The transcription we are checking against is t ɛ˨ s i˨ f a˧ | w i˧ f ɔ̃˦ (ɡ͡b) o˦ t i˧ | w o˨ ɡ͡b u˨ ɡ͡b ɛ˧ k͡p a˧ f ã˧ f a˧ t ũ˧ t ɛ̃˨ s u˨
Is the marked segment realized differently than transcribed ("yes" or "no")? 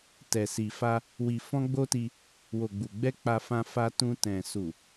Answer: no